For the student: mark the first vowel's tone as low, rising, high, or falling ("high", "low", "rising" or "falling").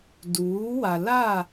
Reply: rising